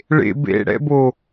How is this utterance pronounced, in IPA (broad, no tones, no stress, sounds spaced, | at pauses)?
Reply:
ɭ ḛ b ḛ ɽ ɛ̰ b o